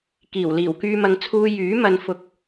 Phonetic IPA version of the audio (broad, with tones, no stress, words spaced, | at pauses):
kiː˨˩w liː˨˩wkyː˧mɐ˧ŋ t͡sʰuː˧ jyː˨˥ mɐ˧n fʊ˧k̚